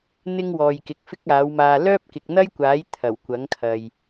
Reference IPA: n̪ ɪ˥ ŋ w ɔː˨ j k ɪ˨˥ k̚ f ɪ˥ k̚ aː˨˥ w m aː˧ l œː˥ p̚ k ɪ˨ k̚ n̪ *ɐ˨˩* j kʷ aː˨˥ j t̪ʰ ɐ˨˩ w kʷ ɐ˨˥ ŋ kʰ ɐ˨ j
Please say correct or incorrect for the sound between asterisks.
incorrect